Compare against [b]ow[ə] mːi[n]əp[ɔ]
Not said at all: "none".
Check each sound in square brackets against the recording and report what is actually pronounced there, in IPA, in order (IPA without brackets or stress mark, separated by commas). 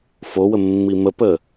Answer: f, ə, m, ə